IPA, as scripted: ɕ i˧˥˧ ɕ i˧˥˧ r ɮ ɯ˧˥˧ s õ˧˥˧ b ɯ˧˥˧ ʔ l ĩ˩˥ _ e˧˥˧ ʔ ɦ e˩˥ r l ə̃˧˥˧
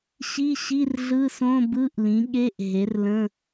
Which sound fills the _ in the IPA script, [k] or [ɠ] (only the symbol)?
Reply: ɠ